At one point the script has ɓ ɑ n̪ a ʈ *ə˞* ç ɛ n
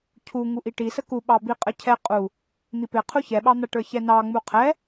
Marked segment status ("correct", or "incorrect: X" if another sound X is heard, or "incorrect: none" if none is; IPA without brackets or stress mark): correct